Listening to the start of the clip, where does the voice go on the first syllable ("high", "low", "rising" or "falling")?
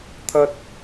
low